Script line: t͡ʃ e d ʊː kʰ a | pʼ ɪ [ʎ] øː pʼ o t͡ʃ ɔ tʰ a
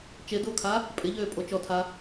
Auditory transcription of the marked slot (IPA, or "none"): ʎ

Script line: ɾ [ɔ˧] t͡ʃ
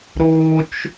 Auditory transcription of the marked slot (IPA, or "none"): o˧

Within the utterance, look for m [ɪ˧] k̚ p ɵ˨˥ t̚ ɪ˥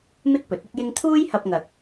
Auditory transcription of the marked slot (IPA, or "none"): ɪ˥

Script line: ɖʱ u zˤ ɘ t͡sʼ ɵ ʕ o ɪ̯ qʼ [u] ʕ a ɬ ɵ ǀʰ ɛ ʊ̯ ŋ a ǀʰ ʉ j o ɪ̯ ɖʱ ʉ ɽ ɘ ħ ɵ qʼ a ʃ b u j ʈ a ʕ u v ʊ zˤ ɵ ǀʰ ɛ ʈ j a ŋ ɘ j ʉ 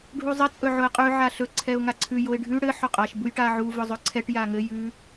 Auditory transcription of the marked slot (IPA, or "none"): ʉ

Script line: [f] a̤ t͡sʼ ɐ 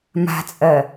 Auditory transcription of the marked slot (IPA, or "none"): m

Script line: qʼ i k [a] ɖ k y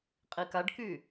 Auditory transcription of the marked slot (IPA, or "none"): a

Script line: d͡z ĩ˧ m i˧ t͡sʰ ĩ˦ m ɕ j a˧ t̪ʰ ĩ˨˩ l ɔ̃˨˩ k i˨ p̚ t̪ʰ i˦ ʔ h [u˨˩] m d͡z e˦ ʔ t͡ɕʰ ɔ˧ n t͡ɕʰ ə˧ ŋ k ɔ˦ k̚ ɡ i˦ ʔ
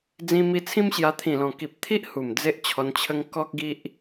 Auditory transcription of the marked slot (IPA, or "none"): u˨˩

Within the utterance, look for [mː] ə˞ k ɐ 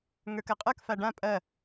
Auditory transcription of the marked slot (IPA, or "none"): ŋ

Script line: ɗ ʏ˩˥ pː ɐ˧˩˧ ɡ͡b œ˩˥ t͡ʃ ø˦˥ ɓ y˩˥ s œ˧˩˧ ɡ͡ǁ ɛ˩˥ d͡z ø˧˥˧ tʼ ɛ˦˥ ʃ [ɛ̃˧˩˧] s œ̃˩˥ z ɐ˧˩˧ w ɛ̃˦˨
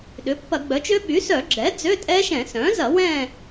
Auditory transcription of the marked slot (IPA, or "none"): ɛ̃˧˩˧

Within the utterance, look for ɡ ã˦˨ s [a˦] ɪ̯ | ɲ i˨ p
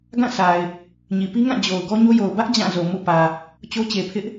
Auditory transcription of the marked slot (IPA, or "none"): a˨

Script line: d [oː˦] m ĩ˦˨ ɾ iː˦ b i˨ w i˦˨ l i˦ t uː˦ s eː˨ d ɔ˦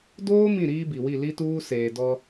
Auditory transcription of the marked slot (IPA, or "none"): oː˦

